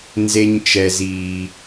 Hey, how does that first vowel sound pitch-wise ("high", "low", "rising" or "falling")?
low